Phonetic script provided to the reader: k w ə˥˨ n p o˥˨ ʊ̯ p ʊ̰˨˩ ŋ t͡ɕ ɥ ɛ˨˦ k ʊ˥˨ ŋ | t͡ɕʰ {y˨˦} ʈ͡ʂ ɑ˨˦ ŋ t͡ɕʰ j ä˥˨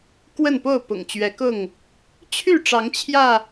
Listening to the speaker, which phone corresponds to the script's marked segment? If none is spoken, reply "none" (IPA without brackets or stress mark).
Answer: y˥˨